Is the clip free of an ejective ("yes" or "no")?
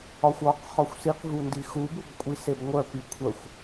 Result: no